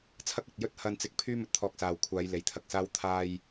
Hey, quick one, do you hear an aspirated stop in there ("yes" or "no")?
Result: yes